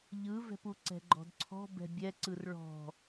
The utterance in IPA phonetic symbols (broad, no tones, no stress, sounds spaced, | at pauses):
ʎ ɯ v ɛ̤ p u ǀ ɛ̤ ɡ͡ǃ ɔ̤ d ǀʰ ɔ̤ b ɛ̤ bʲ ɛ ǀ ɯ r ɭ ɔ̤